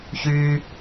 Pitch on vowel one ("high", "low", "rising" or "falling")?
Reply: high